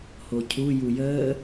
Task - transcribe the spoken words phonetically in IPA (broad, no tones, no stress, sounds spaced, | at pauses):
h o cʰ u j u j əː